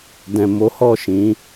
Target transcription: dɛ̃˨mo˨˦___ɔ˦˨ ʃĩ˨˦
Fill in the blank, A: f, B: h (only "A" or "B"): B